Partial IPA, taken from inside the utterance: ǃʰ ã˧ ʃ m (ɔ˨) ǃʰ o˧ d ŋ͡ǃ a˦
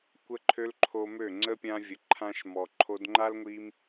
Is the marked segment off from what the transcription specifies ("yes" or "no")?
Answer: no